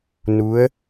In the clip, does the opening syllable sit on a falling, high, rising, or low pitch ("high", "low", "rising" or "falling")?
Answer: rising